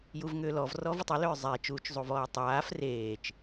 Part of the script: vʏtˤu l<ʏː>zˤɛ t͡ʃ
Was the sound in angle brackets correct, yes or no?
yes